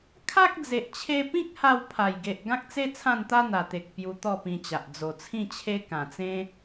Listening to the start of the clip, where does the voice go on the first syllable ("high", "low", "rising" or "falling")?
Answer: high